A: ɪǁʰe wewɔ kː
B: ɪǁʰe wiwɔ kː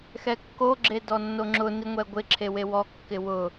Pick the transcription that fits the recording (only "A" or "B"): A